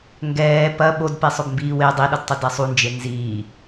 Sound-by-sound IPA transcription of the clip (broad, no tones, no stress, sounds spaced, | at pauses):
ŋ ɡ ɛː p ɐ ɓ o d p e sˤ ʊ b m b iː w e dˤ i ɗ ʊ d tˤ ʊ d ɛ sˤ u n d͡ʒ e n z iː